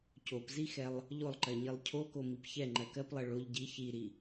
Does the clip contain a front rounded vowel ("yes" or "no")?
no